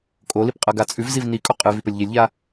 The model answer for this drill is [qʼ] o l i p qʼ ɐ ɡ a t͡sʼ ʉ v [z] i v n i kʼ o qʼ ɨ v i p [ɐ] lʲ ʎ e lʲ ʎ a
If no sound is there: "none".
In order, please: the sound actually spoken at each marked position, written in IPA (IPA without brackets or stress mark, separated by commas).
kʼ, z, ɐ